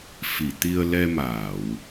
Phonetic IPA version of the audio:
f i˨˩˨ t̪ i˧ ə̯ l ɛ˧ m aː˨˩˨ w

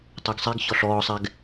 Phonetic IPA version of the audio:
tˤ o ɡ sˤ ɛ ɡ ç ɔ ɬ ɔː sˤ ɛ ɡ

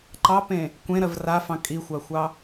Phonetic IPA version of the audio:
ǃ ɑ p ẽ | kʷ ẽ ɾ ɜ v r a f ɑ̃ kʼ i xʷ a xʷ ɑ

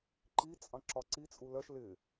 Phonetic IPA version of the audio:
ǃ i t͡sʼ ɑ̃ ǁ ɒ ǀ i t͡sʼ u l ɜ ʃ l ɪ

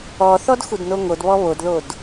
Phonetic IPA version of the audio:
ɔ θ ɔ d x u d n o ŋ o d β ɔ β o d ð o d

